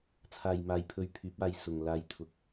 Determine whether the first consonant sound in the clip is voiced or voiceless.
voiceless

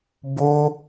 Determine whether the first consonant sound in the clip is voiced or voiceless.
voiced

